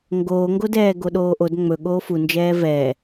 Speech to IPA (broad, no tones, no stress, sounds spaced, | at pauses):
ŋ ɡ oː ŋ ɡ o d ɛː ɡ o ɗ oː ʔ o d ŋ͡m ɵ ɠ oː f u n d͡ʒ ɛː v ɛ